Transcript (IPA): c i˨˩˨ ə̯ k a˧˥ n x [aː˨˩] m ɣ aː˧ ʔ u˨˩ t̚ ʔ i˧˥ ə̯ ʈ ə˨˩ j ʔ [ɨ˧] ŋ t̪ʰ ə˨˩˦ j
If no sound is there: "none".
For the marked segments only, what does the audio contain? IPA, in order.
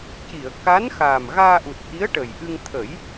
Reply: aː˨˩, ɨ˧

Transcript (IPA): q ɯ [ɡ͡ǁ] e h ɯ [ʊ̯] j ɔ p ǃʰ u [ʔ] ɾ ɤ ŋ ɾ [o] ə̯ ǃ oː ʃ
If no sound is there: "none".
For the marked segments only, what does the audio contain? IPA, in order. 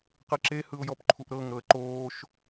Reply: ǁ, ʊ̯, ʔ, ɤ

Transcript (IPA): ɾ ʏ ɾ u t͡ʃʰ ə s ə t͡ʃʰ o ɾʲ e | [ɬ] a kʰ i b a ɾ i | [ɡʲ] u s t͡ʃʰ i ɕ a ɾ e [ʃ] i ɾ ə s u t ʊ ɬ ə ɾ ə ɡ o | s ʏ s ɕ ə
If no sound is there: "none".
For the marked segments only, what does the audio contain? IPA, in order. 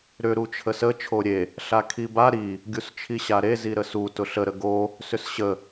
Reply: ɬ, ɡʲ, z

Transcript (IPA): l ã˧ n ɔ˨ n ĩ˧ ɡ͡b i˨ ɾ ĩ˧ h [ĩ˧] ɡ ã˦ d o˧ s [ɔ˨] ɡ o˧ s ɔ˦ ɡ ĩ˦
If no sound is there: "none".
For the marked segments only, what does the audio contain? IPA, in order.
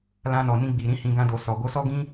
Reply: ĩ˧, ɔ˨

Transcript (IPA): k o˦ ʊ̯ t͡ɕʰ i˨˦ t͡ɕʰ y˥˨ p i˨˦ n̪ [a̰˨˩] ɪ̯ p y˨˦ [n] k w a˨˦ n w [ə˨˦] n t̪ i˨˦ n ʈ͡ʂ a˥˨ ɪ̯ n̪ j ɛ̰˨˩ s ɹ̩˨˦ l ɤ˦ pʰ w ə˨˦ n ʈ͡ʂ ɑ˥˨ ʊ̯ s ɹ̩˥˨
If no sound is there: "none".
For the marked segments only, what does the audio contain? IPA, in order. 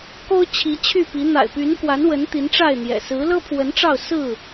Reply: a̰˨˩, n, ə˨˦

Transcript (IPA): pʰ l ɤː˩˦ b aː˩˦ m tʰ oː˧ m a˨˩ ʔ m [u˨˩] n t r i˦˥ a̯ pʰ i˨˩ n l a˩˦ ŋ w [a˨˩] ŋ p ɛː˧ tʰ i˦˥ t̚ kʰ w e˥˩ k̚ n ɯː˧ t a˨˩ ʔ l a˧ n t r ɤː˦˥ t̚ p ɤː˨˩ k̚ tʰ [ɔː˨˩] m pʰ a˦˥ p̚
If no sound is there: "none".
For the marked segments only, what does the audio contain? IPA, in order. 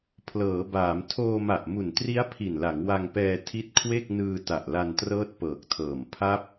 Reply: u˨˩, a˧, ɤː˨˩

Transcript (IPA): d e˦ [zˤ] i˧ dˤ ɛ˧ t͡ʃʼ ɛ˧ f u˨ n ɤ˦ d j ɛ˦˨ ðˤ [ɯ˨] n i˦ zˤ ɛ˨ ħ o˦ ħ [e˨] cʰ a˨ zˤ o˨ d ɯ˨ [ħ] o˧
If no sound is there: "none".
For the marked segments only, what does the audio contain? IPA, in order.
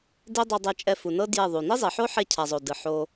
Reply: dˤ, u˨, e˧, ħ

